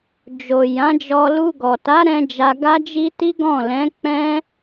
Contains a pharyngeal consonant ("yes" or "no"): no